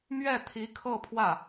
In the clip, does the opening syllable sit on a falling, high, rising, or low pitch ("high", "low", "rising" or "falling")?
falling